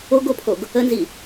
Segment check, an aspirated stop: present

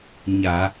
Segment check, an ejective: absent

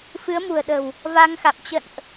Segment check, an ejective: absent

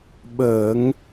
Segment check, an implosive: present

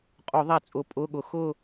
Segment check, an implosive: present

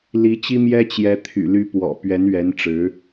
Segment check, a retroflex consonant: present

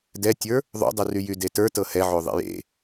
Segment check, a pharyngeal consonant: present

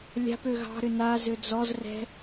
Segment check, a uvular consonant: absent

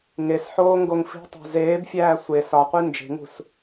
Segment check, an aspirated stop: absent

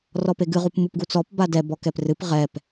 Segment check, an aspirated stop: absent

